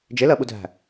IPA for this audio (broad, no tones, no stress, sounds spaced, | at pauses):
d͡ʒ ɪ l ɜ ɓ u dʱ æ̤